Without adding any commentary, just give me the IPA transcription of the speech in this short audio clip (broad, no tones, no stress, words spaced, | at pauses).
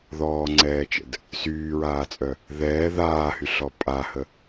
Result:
ðɔːŋ͡ǀɛːt͡ʃə̰d | syːɹaːt͡sʼœ | ðɛː ðaːhyɬɔ pʼahə